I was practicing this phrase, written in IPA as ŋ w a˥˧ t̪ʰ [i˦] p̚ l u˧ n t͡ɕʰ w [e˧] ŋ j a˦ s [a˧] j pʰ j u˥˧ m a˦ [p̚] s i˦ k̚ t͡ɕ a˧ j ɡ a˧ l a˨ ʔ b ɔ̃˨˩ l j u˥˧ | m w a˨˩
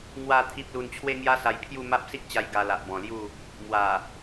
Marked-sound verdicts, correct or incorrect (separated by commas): correct, incorrect, correct, correct